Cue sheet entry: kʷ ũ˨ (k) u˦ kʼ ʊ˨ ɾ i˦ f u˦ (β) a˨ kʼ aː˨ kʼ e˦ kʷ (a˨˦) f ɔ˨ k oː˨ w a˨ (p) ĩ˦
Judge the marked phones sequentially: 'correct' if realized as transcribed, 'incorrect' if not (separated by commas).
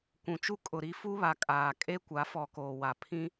incorrect, correct, correct, incorrect